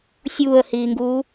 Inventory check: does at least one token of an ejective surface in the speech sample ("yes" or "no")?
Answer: no